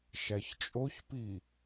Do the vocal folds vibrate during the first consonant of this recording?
no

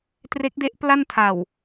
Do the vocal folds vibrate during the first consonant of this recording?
no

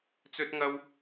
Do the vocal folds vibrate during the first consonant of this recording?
no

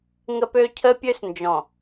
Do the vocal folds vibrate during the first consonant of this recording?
yes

